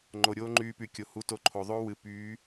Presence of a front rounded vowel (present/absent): present